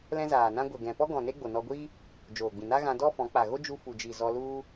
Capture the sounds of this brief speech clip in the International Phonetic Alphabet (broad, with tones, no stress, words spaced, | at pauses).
lɛ̃˦zaː˨nã˦ ɡʷɛ˨ɡɛ̃˨pɔ˦ ɡɔ̃˨ ne˦ɡ͡bo˨nɔ˧ɡʷi˦ | d͡ʒoː˨ɡ͡bĩ˨ na˦ɣã˧ dɔ˦fɔ̃˨˦k͡pa˨ ɣo˦d͡ʒu˧fu˨d͡ʒi˨ zɔ˧lu˦